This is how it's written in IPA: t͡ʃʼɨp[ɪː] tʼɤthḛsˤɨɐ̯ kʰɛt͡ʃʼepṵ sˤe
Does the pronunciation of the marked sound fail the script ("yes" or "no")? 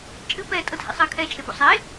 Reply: yes